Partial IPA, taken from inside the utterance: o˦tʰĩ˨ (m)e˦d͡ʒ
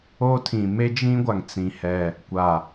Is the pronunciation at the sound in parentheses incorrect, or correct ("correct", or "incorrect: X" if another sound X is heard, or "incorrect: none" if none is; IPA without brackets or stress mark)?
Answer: correct